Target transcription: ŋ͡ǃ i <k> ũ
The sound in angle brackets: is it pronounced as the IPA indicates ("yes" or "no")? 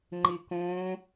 yes